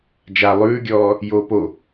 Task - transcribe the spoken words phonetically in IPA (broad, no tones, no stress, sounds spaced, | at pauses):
d͡ʒ a lˠ ʉː ɡʲ ɔː | j oː p o